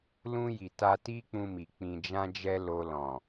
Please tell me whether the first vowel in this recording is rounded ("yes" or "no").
yes